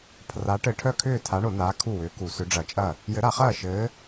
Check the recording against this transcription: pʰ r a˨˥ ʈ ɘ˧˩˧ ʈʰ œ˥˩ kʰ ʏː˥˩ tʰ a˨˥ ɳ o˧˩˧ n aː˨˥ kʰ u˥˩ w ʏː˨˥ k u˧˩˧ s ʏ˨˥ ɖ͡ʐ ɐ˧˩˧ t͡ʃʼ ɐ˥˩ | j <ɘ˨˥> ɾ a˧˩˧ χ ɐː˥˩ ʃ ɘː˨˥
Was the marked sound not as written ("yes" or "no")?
no